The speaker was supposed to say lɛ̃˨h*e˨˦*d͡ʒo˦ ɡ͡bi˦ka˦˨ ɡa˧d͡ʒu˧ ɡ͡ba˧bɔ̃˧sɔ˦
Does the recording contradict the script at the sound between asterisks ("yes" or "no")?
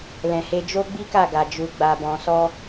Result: yes